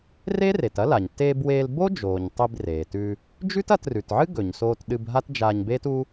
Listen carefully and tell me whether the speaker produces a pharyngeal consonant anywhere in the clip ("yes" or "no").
yes